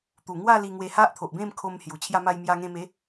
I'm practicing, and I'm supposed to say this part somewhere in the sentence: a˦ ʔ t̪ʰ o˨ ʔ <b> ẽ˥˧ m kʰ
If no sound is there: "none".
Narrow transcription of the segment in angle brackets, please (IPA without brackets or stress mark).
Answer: b